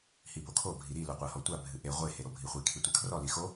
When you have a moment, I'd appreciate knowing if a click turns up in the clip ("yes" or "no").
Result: no